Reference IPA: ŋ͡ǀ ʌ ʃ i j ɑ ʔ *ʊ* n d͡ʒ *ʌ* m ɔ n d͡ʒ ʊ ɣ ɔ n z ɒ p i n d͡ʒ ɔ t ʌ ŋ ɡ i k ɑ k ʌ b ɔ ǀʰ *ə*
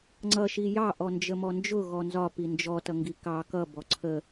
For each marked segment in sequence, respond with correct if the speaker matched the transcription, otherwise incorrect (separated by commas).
incorrect, incorrect, correct